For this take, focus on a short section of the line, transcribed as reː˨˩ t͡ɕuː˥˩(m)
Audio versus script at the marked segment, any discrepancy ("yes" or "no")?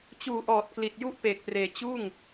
yes